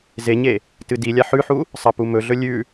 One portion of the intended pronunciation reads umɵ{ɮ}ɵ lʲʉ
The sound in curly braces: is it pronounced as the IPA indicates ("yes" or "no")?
yes